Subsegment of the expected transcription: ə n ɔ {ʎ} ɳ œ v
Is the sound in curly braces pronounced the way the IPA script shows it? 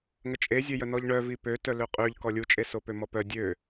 yes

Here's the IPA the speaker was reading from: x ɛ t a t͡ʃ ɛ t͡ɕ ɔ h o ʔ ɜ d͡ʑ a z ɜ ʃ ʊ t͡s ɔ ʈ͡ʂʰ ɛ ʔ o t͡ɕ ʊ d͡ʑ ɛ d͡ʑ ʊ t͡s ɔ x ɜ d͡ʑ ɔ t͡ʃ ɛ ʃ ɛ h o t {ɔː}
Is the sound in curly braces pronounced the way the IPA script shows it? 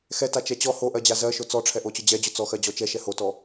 no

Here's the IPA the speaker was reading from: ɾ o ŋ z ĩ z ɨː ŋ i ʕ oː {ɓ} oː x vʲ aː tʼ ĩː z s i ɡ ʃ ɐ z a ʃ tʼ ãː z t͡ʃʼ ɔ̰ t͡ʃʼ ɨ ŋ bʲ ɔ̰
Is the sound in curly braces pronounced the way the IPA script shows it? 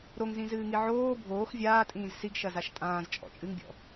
no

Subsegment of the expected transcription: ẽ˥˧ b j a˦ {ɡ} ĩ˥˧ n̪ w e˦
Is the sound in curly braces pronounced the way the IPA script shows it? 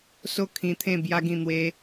yes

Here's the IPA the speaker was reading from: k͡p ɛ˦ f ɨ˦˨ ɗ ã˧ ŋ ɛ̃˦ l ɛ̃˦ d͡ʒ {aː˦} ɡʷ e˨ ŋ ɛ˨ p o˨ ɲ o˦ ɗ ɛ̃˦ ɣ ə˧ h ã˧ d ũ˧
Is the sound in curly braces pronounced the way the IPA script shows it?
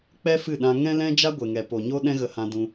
no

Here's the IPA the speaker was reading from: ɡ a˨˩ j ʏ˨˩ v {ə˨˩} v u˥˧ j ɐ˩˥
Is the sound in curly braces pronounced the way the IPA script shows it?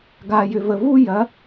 yes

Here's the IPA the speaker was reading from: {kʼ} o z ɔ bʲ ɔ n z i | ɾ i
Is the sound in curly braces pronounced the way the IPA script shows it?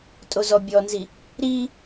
no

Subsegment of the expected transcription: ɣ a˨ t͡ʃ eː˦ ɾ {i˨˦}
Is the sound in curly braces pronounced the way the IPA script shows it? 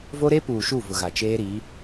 yes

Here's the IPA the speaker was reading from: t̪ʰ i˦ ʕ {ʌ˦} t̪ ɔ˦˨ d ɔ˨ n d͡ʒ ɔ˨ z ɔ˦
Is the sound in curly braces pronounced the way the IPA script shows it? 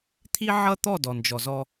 yes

